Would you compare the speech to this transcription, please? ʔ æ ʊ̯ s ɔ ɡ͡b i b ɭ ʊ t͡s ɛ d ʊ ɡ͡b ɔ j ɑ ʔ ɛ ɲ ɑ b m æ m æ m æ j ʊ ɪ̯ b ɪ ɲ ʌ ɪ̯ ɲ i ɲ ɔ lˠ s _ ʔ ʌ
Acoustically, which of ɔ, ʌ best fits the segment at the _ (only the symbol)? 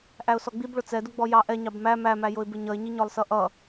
ʌ